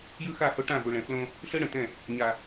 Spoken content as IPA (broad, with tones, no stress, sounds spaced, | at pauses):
j ɯ˦ x a˦˨ h o˦ ʈ ã˦˨ v u˨ ɭ ɛ̃˨ f l õ˦ | ɬ ɯ˦ ɽ ə̃˨ t ɛ̃˦˨ | ɲ a˨